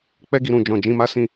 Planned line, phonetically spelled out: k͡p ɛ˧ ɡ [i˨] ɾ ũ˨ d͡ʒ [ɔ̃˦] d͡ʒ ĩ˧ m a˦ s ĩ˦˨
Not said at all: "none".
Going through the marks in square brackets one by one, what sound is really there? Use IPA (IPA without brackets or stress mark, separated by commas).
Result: i˨, ɔ̃˨